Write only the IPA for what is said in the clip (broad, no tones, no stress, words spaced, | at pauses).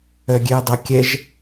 œɡʲeɐ̯dˤa kʲɛʒ